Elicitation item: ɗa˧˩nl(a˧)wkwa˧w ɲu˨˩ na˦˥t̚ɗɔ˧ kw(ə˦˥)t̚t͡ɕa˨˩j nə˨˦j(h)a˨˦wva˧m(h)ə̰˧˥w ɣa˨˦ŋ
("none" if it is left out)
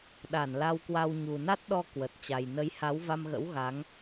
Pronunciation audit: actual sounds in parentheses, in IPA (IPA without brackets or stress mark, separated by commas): a˧, ə˨˩, h, ɣ